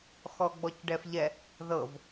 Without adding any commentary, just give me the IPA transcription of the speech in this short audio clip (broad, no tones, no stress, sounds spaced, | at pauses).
x ɔ ɡ͡b ɔ c ɖ ɛ f ʎ ɛ | ð ɤ v